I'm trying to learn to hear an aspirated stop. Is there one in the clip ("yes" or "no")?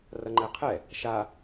yes